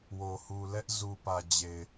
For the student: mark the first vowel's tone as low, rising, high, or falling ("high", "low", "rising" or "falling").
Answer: low